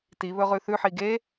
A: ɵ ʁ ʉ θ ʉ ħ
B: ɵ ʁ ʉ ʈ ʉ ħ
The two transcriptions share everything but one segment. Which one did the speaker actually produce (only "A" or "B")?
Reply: A